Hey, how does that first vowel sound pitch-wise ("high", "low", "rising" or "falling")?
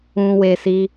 low